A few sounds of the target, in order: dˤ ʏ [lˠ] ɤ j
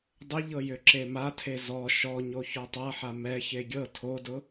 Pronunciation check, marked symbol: incorrect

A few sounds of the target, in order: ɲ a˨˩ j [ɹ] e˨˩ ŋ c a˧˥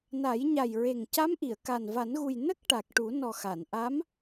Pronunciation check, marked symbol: correct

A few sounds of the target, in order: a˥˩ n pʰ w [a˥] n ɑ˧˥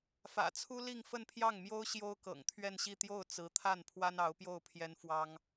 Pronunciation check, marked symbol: correct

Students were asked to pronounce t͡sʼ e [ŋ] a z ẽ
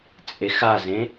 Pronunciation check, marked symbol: incorrect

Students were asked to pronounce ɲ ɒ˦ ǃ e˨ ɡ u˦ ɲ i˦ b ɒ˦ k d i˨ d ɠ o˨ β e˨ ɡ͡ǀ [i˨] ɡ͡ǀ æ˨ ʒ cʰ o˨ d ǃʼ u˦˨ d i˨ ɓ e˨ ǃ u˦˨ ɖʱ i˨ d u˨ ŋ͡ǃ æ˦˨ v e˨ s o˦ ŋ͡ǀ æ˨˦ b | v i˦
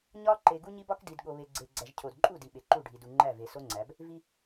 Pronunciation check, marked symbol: incorrect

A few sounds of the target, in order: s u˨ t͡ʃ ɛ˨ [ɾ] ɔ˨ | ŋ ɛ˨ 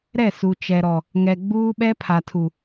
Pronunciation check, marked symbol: correct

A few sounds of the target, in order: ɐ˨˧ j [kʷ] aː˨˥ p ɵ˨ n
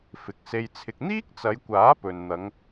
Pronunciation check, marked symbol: correct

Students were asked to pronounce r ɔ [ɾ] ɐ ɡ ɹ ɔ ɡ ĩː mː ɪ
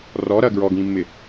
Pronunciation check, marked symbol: correct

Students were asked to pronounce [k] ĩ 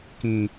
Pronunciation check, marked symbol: correct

